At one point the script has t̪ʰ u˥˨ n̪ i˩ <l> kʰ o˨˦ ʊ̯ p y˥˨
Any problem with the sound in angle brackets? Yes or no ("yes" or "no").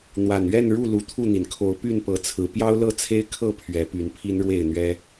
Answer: yes